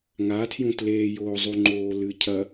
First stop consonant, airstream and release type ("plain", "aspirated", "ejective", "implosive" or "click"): aspirated